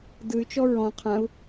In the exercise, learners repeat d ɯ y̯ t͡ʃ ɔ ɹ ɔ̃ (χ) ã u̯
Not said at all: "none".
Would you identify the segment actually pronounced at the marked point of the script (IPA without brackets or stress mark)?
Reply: qʰ